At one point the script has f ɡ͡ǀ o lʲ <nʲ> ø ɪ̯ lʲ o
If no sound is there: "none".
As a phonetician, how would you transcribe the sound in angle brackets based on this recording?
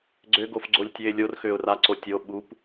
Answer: tʲ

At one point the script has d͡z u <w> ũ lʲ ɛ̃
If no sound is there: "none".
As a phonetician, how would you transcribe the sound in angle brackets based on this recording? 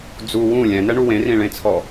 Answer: w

